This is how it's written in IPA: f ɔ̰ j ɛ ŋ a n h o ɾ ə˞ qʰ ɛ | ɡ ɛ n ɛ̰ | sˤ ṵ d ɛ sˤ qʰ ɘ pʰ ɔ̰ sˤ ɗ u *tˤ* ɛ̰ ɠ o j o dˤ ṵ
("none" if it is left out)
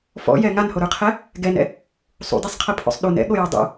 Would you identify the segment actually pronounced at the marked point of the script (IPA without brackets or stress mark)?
n